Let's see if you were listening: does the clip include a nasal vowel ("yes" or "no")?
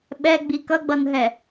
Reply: no